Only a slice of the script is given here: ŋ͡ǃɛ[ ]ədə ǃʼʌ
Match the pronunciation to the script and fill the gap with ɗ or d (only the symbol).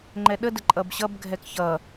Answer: ɗ